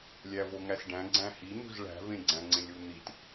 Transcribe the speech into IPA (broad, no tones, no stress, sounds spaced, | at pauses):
lʲ æ v o ŋ æ s ɖ æ̃ ɡ͡ǀ æ̃ h i n̪ ṳ z ɭ æ̤ v ẽ ɡ͡ǀ æ̃ ŋ͡ǀ ẽ lʲ u n̪ i t